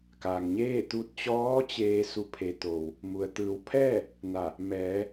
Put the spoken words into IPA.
k a˩ ŋ ɲ eː˥˨ t̪ u˧ t̚ t͡ɕ ɔː˧˥ t͡ɕ eː˧ s u˧˩ pʰ e˩˧ t̪ o˩ w | m u˩ ə̯ t̪ ɯː˩˧ w pʰ ɛː˥˨ | n a˧˩ | m ɛː˩˧

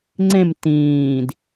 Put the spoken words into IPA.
ŋ͡ǀ ẽ m t ĩː d

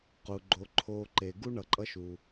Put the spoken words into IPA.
q u˩ ɡ͡ǃ o˨ ǃʰ o˨ ǃ e˨ ɡ u˥ ɳ ʌ˨ ǃʼ ʌ˦ ʃ u˩

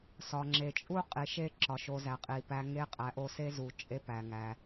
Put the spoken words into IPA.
s ɒ˩ ŋ͡ǁ e˩ t͡ʃʼ u˥ qʼ i˨ ʃ e˦ ǁ ɒ˩ ʃ o˨ z æ˩ qʼ i˩ p æ˨ ŋ e˥ qʼ æ˨ ʔ o˦ s e˥ z u˨ t͡ʃʼ e˥ p æ˨ ŋ æ˨

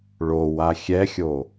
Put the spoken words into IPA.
ɭ o w a xʲ ɛ xʲ o

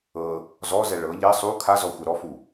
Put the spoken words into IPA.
ɤ | z ɔ z ɛ ɭ ɤ ʎ ɛ sˤ u kʰ a z ɔ xʷ ɛ ɾ ɔ f u

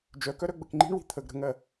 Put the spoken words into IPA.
d͡ʒ œ k œ ɾ œ ɡ͡b ə k ŋ͡ǃ i̤ ɳ w i̤ t̪ʰ ə ɡ ɾ ə̤ ŋ ɜ

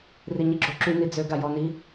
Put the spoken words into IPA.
r i ɲ i ɡ͡ǁ o ǁ y n i d͡z ø ɡ a j ɔ n i

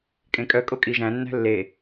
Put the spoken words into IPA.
kʼ ẽ kʼ œ kʼ o kʼ i ʒ æ̃ nː æ̤ lː e

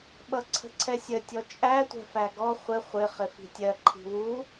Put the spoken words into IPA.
ɓ ʌ ǀʰ ə̤ ǀʰ ɛ sʲ ə tʲ ɔ t͡ʃʼ æ tʷ ɛ̤ f æ ɡ ɔ χʷ ɪ χʷ ɪ χ ɪ f i̤ tʲ ɜ ǃʰ i̤ w u

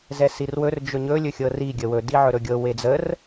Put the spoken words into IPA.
z ɛ s i r w ɵ r d͡ʒ ɵ ɲ ɵ lʲ ɵ xʲ ɤ r i ɡʲ ə w ɵ d i ʕ ɵ ɾ ɵ ɡʲ ɤ w e d͡z ə r

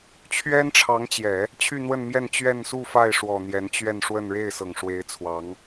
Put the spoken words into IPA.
t͡ɕʰ ɥ ɛ˥ n ʈ͡ʂʰ ɑ˧˥ ŋ t͡ɕ j ɛ˨˩˦ | t͡ɕʰ y˥˧ n̪ w ə˥˧ n m j ɛ˥˧ n t͡ɕ ɥ ɛ˥˧ n s u˥˧ f a˥˩ ɪ̯ ʂ w ɔ˨˩ n̪ j ɛ˧˥ n t͡ɕ ɥ ɛ˥˧ n ʂ w ə˥˧ n ɻ e˥˩ ɪ̯ s ɤ˨˩ ŋ ʂ w e˧˥ ɪ̯ t͡sʰ w ɑ˧˥ ŋ

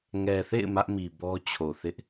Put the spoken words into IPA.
ŋ ɛ˨ θ ḛ˦˨ ɪ̯ m ä˦ ʔ m i˨ b ɔ˦ t͡ɕʰ o˨ θ ɪ˦ ʔ

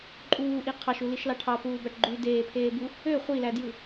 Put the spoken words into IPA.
ǃʼ uː ʔ i qʰ ɑ ʃ u l i ʃ l ɑ ʈʰ ɑ p uː b æ ʈ ɡ͡ǃ y d eː pʰ eː b u | ø χʷ i l æ d j ɯ

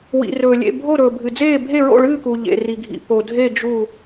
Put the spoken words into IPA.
w ḭ˨ r ɵː˨ lʲ ḛ˥˨ bʱ o˥˨ ɾ ɵː˨ bʱ ɨ˨ d͡z eː˥˨ bʱ e˥˨ ɹ o̰˥˨ ɭ ɨː˥˨ k u˨ ʎ ḛ˨ r i˨ ɡʱ ḭ˨ p o˨ dʱ e˥˨ d͡ʒ u˥˨

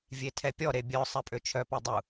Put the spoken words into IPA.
vʲ e tʰ ɛ pʲ ɔ ɾ e bʲ œ sˤ ɛ pʼ ø t͡ʃʰ œ p ɛ dˤ u

